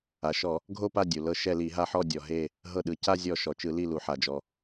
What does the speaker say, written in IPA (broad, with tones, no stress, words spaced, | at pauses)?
a˩ʃɔ˧˩˧ | ɡʱo˦˨pa˦˨ dʲu˩lɤ˦˨ ʃɛ˦˨li˧˩˧ɦa˦˨ ħɔ˦˨dʲɔ˩ ɦe˦˨ | ɦɤ˦˨ɗɯ˩ ca˦˨zʲɔ˧˩˧ ʃɔ˩t͡ʃɯ˧˩˧li˦˨ lu˩ħa˩d͡ʒɔ˩